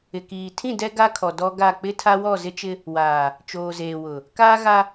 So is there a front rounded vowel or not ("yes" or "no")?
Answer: no